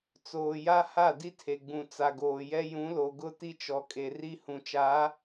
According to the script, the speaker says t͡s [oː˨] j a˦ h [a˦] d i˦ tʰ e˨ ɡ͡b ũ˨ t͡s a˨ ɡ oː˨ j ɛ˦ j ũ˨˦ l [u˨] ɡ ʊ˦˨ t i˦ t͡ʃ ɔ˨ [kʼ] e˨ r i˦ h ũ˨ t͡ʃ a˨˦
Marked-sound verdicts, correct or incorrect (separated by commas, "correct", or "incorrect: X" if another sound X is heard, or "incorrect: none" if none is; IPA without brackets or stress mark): correct, incorrect: a˦˨, incorrect: o˨, correct